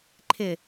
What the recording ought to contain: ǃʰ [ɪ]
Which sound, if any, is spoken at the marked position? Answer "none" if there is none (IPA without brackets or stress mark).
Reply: ɪ